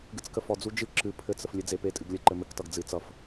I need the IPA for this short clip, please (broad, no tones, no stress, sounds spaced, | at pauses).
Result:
ɡ ɨ t͡s k ə f ɔ d͡z u d͡ʒ ɨ ǁ ɨ pʰ ɘ t͡s ə f lʲ ɘ d͡z e p e tʼ ɨ ɡ lʲ ə ǃ ɘ m ɘ k t ʌ ɡ d͡z ɨ t͡s ʌ f